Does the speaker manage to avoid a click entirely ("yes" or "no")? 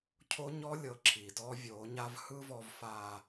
no